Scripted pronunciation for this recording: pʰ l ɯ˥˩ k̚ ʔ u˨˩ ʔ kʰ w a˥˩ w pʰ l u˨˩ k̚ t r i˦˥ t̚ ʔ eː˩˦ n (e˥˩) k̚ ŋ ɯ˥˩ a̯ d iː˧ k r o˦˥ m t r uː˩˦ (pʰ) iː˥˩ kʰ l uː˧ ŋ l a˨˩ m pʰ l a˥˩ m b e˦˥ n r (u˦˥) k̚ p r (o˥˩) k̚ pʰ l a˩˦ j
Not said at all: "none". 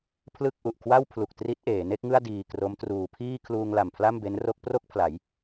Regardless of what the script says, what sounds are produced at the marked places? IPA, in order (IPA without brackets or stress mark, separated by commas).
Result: e˥˩, pʰ, o˦˥, o˥˩